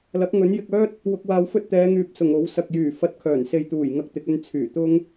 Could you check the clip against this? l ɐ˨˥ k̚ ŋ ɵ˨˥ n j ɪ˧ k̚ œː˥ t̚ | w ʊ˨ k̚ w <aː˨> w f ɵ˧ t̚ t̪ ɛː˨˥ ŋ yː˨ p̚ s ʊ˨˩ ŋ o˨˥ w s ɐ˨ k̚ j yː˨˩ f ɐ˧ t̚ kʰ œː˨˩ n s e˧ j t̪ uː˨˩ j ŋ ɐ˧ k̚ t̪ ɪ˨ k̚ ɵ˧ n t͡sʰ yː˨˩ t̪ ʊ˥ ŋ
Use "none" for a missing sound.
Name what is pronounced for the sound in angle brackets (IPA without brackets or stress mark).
aː˨˧